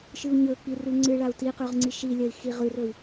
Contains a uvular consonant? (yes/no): yes